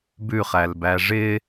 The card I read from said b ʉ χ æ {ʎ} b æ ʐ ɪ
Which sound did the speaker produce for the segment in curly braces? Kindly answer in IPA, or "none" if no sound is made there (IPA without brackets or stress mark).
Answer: l